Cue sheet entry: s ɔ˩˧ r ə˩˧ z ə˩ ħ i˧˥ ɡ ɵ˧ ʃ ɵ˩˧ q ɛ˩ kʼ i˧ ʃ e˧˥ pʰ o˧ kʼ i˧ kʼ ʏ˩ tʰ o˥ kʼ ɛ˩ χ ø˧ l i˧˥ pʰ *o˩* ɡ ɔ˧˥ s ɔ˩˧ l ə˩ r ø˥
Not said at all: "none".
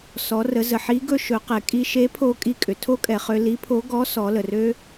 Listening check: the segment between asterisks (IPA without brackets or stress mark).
o˧˥